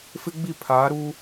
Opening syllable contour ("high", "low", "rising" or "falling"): high